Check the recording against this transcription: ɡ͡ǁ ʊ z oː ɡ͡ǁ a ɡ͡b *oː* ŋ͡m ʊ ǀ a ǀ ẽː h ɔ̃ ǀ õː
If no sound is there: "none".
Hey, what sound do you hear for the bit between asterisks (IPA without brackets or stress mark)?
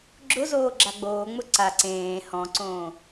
oː